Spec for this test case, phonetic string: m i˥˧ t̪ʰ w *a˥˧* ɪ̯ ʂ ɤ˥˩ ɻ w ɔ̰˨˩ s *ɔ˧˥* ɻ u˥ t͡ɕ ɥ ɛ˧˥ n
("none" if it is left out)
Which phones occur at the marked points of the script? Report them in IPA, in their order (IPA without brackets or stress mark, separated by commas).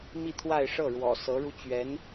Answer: a˥˧, ɤ˧˥